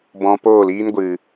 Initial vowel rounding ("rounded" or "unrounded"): rounded